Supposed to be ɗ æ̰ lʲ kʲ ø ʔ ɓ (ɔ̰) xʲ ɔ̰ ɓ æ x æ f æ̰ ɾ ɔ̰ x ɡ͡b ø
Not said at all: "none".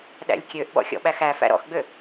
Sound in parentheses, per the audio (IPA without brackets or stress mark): ɔ̰